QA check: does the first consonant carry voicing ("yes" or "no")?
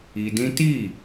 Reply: yes